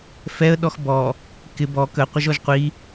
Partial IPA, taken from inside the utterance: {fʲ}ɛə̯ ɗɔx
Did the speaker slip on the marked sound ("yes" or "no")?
yes